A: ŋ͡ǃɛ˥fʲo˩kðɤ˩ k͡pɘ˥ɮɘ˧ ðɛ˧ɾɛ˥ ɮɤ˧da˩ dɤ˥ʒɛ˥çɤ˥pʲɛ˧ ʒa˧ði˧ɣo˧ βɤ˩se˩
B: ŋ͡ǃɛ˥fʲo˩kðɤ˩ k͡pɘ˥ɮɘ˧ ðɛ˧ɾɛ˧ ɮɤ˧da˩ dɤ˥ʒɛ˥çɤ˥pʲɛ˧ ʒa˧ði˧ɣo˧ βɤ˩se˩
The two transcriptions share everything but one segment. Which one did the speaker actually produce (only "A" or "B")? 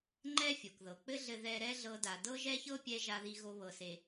A